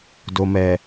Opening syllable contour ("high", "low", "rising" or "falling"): low